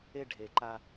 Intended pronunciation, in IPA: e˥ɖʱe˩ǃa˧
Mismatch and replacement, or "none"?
none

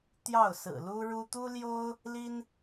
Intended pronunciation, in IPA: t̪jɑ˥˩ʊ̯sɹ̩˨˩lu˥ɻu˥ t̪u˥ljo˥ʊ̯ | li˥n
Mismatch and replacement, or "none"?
none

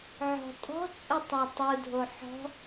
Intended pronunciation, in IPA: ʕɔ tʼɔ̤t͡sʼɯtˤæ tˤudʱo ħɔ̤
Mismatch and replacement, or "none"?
ɔ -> ɔ̤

